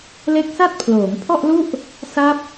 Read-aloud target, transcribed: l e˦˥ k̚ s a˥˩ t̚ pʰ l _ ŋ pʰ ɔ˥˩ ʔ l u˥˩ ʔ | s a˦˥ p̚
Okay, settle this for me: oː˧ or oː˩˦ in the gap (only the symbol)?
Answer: oː˩˦